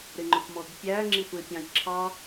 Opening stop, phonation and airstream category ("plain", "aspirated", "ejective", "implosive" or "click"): click